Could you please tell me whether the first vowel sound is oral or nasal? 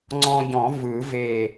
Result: nasal